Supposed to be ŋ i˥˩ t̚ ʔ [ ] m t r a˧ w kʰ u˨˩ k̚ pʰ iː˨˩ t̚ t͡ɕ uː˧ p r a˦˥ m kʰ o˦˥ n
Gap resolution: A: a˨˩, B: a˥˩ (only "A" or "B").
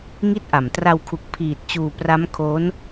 A